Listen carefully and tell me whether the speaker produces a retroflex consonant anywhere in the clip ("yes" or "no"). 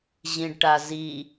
yes